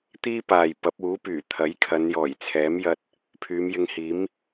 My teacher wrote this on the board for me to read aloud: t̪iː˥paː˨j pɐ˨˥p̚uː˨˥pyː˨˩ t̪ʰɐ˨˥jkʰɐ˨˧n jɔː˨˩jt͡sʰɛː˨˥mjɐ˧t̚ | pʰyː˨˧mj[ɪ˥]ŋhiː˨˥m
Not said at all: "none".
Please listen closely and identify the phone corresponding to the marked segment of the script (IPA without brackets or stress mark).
ɪ˧